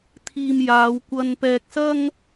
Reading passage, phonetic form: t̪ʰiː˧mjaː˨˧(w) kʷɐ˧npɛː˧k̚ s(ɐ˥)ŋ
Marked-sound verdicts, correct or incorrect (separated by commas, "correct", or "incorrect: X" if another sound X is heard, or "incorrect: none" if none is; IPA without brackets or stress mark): correct, correct